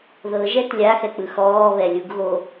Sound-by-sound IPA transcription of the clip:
ð ɤ ʒ ɛ t lʲ a x ɛ k͡p ɯ x ɔː β ɛ lʲ u ɡ ɣ o

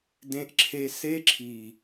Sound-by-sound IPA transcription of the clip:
d ẽ˦ ʔ ǁʰ e˦ s e˦ ǁʰ i˨

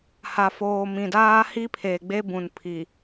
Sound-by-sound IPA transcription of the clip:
h a˨ f oː˨ m ĩ˨ d aː˦ h i˦ pʰ eː˨ ɡ͡b e˦ b ũ˨ n pʰ i˨

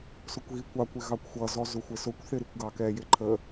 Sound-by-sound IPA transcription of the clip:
s ʊ kʷ ɣ i kʷ ɑ kʷ ɪ ɣ ɑ kʷ xʷ ʌ z ɔ z ʊ xʷ ɪ s ʊ kʷ θ ɪ ɾ i kʷ ɡ ɑ k ɛ j ɪ ǃʰ ə

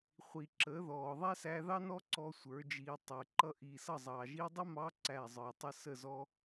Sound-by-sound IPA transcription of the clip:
χʷ i˨ ǁ əː˨˦ ð ɔː˨ ðˤ æ˦ s æ˧ ð ɑ˦ n ɔ˦ ǀ ɔ˦ sʷ ə˞˨˦ d͡ʒ iː˧ tˤ əː˨ ǃ ʌ˦ ʔ iː˨ s ʌ˦˨ zˤ ɑː˨ ʒ i˧ dˤ ə˦ m ɑ˧ ǀ æ˦˨ zˤ ə˞˨ tˤ ə˦ s ə˦˨ z ɔ˧

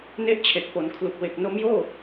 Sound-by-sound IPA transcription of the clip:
n e˦˥ ʔ t͡ɕʰ e˨˩ k̚ p o˩˦ n kʰ l u˨˩ k̚ w e˨˩ k̚ n o˦˥ m j oː˥˩

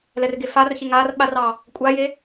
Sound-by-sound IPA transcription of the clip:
l ɛ r ɡ e f a r ç e ŋ a r ɓ a r ɑ | kʷʼ a j e

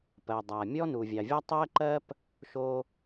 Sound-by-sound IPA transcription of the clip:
p ɜ˩ dˤ a˩ mʲ ɔ˥ n u˩ vʲ ɑ˩ vʲ ɑ˥ tˤ ɜ˥ ǃ ɜ˥ p | ʃ o˥

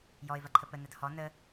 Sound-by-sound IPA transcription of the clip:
j ɔ ɪ̯ v ɐ ǃʰ ə p ə n ɐ d h ɔ n ə

